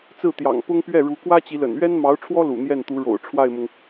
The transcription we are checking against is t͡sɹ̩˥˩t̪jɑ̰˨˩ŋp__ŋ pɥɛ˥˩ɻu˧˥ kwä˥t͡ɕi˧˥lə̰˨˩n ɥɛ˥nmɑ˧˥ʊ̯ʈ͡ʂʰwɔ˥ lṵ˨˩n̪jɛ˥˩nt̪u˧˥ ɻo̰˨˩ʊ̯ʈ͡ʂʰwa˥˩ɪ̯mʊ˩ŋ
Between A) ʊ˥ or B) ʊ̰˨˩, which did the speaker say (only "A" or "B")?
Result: A